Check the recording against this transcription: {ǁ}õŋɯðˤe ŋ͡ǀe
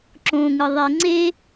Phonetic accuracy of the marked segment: correct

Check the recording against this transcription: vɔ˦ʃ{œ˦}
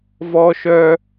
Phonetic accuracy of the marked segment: correct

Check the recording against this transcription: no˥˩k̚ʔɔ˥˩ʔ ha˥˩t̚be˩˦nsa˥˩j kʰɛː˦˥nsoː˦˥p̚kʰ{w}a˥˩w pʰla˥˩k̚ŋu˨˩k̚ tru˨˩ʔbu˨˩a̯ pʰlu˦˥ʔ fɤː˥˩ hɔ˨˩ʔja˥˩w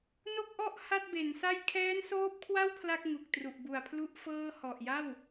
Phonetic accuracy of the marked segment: correct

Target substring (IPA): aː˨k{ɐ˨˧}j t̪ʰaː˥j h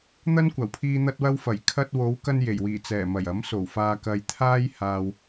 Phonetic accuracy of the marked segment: incorrect: ɐ˨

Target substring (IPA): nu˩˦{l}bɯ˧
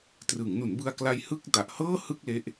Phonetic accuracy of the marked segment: incorrect: n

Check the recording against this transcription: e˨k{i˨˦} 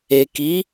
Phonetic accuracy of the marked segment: correct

